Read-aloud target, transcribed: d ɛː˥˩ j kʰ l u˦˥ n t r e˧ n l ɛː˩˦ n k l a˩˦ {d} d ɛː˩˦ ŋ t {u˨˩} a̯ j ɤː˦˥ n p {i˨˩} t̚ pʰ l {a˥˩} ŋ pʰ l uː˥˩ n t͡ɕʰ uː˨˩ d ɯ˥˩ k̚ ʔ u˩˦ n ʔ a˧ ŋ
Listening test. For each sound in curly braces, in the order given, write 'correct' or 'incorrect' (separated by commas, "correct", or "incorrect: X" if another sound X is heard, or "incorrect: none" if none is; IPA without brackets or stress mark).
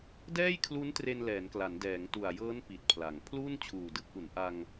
incorrect: n, correct, correct, incorrect: a˩˦